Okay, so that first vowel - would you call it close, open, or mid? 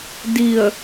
close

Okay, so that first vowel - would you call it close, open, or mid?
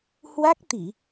open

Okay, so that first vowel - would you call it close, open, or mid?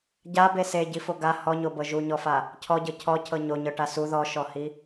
open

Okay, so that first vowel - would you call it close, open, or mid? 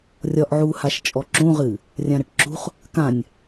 open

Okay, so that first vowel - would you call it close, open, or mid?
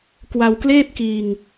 open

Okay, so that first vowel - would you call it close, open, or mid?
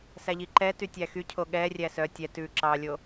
open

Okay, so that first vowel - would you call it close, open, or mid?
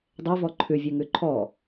mid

